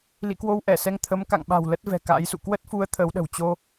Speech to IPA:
l ḭ˧˨ k w o˧ w ʔ ɛ˧˩ s ɛ˧ ŋ t̪ʰ ə˨˦ m k a̰˧˨ ŋ ɓ a̤˨˩ w l ə˦˥ t̚ v ɛ̤˨˩ k a̰ː˧˥ j s ṵ˧˨ k w ə˦˥ t̚ f u˨˦ ə̯ t̪ʰ əː˨˦ w ɗ ə̤˨˩ w t͡ɕ o˧

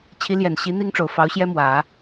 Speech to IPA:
t͡ɕʰ i˧˥ l j ɛ˨˩ n ɕ i˧˥ n̪ i˥ ŋ ʈ͡ʂ o˨˩ ʊ̯ f ɑ˧˥ ʊ̯ ɕ j ɛ˥ m w ä˨˩˦

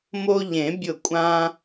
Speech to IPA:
m o˧ ʎ ẽ˨˩˦ bʲ ʊ˧˩ kʷʼ ã˧

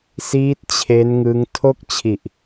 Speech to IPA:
s iː˦˥ t̚ t͡ɕʰ e˦˥ n ŋ ɯ˦˥ ŋ tʰ o˥˩ k̚ t͡ɕʰ i˨˩ ʔ

